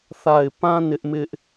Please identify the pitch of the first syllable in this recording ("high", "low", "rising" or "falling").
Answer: low